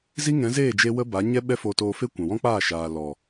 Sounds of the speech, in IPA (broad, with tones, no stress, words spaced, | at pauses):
zi˦ŋɛ̃˨˦zeː˦˨d͡ʒe˧ wə˦ba˨˦ɲɛ˦ ɓɛ˦fo˧toː˧ fe˦kʷã˨ wɔ̃˦k͡paː˦˨ʃaː˨lɔ˨